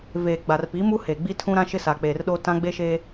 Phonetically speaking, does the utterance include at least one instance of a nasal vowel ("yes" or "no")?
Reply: yes